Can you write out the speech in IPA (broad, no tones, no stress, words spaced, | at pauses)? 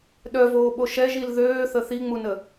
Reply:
ɗœvoːɓo ʃɛʒil ðøːθə θiŋ͡munə